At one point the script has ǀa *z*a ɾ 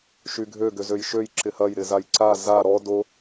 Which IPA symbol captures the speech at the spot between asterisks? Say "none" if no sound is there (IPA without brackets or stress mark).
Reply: z